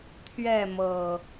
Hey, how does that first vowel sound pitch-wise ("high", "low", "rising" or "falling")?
falling